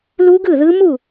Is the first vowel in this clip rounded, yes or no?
yes